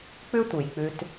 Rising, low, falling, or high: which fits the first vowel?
high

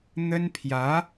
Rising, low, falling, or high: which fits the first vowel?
high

